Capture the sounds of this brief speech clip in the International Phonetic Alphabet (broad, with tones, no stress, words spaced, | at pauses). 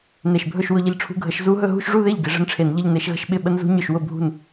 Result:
ne˧˩ʃbʱɵ˥˧ʃ wʊ˥˧ʎɪ˥˩ʎʈ͡ʂʰṳ˦˥ ɡʱə˨˦ʃ zu˦˥ɦɵ˥˧ ɦṳ˥˧ʃʐu˥˧ðe˥˩ʎ ɡɪ˨˦ʐə̤˦˥nʈ͡ʂʰe˧˩˧nʎə˥˧ʎ ne˨˦ʃɣə̤˥˧ʃ ɓɪ˥˩ ɓə˦˥nzṳ˦˥ ɲɵ˥˩ʃwʊ˥˩bʱṳ˥˩n